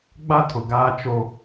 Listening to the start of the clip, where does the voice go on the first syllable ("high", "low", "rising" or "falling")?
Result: high